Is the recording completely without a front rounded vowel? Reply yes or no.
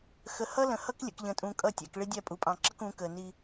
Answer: yes